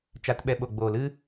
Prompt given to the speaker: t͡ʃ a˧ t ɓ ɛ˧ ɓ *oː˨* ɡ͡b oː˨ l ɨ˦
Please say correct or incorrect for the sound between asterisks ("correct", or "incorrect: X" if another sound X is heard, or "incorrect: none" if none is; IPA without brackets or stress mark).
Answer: incorrect: o˨